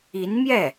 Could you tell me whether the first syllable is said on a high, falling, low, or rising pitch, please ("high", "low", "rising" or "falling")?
rising